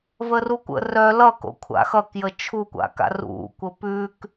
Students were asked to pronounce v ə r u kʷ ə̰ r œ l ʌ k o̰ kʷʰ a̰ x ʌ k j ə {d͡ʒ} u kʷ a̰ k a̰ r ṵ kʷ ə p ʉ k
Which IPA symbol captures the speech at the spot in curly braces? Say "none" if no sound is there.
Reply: t͡ʃʰ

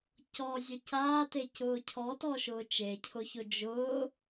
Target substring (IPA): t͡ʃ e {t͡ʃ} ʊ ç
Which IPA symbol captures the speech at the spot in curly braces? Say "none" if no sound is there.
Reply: cʰ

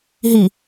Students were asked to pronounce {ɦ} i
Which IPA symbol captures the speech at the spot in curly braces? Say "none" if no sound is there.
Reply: ɦ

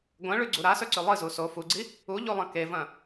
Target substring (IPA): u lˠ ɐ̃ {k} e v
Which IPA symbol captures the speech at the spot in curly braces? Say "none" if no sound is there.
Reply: k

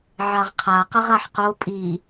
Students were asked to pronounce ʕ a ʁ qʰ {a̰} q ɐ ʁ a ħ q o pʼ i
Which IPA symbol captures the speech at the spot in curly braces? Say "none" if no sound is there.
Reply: a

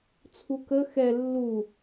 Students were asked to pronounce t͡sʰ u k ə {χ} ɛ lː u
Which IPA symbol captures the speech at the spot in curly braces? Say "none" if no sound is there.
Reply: x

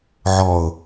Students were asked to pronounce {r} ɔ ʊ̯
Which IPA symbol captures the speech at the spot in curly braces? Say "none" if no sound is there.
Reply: ʕ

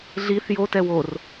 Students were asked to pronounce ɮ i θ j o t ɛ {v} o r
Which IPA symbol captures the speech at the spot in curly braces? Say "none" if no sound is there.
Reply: w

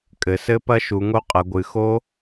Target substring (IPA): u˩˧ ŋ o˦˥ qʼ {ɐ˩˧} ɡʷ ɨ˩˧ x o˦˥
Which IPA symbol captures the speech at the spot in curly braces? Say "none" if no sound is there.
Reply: ɐ˩˧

